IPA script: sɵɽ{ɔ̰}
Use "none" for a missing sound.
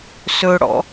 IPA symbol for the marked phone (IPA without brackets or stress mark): ɔ̰